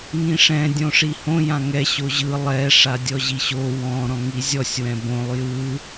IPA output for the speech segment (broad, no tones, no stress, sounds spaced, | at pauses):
ŋ ĩ ʂ ɛ̃ dʲ õ ʂ i h õ j ã ŋ ɛ ɕ o ʑ ɯ lˠ ɛ ʂ a dʲ ɔ ʑ i ɕ o w ɔ̃ ɾ ɔ̃ ŋ i zʲ ɔ sʲ w ɛ̃ b õ lˠ j ɯ